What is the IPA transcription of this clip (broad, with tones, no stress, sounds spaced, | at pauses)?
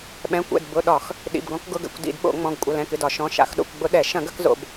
ɓ ɛ̃˩˧˩ kʷ ɛ̰˩˧˩ d b ʊ˩˧˩ ɗ ɒ˧˩˧ x | ɗ ḭ˩˧˩ b ɡ ɔ̃˧˩˧ k ɡ ʊ˩˧˩ ɡ ɛ̰˩˧˩ kʷ d ḭ˧˩˧ d ɓ o̰˧˩˧ ŋ͡m ɔ̃˩˧˩ ɡ kʷʼ ɐ˩˧˩ l ɛ̃˩˧˩ k ɨ˩˧˩ d ɒ˧˩˧ ʃ ɔ̃˩˧˩ ʃ a̰˧˩˧ x ɗ o̰˩˧˩ kʷ ɡ͡b ʊ˧˩˧ ɗ ɛ˧˩˧ ʃ ɐ̃˧˩˧ ɡ ɐ˧˩˧ k z o̰˩˧˩ b